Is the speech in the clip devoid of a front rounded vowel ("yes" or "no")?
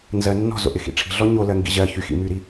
no